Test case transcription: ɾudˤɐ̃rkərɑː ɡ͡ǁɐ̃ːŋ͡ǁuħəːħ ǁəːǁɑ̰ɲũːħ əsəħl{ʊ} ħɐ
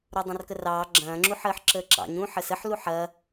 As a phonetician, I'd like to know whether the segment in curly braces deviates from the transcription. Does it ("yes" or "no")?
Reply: yes